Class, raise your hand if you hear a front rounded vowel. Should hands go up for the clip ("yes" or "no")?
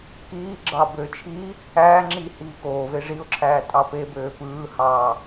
yes